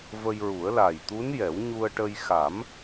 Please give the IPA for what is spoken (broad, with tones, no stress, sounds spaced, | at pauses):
v ə˧ j ɹ u˨˩˦ ə̯ l a˨˩ j t̪ u˧˥ n j ɛ˨˩˦ w ɲ u˧ ə̯ ʈ ə˧ j x a˨˩˦ m